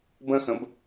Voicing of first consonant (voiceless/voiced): voiced